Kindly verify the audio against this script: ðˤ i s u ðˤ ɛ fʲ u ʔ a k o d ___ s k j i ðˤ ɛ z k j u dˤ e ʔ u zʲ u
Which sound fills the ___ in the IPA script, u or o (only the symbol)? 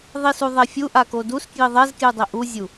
u